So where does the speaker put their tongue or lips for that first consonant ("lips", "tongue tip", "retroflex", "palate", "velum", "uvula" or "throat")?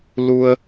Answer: tongue tip